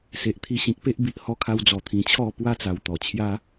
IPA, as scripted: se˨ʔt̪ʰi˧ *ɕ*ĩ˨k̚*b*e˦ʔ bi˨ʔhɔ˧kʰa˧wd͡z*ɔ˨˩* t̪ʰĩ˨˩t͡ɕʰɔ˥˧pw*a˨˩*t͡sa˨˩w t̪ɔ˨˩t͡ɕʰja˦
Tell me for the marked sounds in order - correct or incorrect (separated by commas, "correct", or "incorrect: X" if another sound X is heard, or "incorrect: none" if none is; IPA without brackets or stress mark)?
correct, incorrect: p, correct, incorrect: a˦